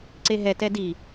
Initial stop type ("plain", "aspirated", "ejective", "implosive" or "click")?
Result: click